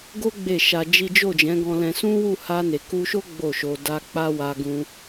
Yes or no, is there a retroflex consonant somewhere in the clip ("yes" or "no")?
no